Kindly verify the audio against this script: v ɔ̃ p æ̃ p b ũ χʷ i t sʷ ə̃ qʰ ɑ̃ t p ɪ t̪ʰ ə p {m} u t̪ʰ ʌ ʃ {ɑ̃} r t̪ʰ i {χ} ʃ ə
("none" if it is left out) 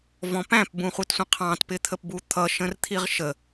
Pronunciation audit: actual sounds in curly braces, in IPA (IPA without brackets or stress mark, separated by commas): b, ə̃, ʁ